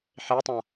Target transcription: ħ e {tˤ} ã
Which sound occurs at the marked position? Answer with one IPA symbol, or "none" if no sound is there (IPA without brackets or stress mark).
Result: tˤ